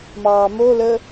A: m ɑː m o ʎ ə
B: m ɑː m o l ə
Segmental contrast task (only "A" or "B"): B